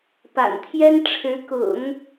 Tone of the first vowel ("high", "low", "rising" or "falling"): low